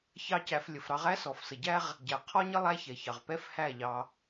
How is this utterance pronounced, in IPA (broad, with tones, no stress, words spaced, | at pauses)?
çɑ˦cæ˧flʲə˨fɾɑ˦ʁ æ˦sɔ˨fsə˨ɟæ˦ʁ | ɟæ˨ qʰɔ˦ɲə˦ lˠæ˦çɛ˨çɑ˨ʁ pɛ˦fhæ˦˨ʎɑ˧